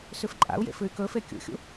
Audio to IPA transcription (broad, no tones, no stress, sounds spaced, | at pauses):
s ʉ f ǃʼ a̰ u̯ j ḛ f ɨ y̯ k ɵ f e kʲ ṵ xʲ ṵ